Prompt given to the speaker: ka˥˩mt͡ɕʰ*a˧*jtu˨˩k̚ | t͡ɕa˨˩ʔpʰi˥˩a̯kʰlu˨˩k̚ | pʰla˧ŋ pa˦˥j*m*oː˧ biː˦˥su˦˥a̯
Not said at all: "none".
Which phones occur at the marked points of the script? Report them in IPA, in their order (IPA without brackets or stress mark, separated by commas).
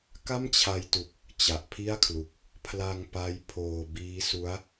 a˧, pʰ